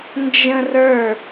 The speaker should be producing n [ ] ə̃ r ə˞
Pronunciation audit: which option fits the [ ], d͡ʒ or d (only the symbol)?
d͡ʒ